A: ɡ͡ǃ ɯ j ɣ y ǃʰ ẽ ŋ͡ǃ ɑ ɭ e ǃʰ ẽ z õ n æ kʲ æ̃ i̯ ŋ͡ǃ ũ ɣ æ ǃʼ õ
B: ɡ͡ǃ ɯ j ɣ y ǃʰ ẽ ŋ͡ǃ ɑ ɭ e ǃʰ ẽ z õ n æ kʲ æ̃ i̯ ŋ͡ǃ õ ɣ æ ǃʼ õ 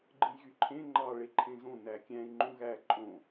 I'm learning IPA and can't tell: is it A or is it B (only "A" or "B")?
A